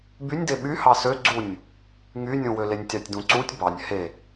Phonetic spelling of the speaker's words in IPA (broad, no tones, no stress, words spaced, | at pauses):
bynʲde ɓy hɑsø ɡ͡ǀunʲ | ŋynʲũwø lenʲtʲɑtʲdũǀutʲ bɑnʲ he